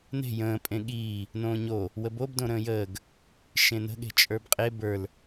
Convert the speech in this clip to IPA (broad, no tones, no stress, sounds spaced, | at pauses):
n e̤ j ə̃ː pʼ ẽ ɠ iː | n õː ɲ o | w ə b o b d õ ɾ ə̃ː j əː ɡ | ʃ ẽ n ə̤ ɠ e̤ t͡ʃʼ ə˞ b qʼ e b ə˞ l